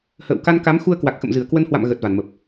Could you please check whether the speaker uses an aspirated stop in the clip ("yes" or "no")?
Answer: no